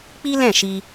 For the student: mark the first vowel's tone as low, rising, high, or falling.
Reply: high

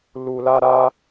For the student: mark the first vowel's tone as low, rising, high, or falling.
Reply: low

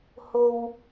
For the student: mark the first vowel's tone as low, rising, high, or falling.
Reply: high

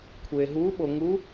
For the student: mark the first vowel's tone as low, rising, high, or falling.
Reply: low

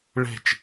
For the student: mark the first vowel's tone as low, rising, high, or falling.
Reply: falling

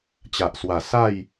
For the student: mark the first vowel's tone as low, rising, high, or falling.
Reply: low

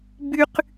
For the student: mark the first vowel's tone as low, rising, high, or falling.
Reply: high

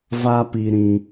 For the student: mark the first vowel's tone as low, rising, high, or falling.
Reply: high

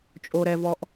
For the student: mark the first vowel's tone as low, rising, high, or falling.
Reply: low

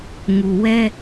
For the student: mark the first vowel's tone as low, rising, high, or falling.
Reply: low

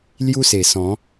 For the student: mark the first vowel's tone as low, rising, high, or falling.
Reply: high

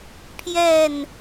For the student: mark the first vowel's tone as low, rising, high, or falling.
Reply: falling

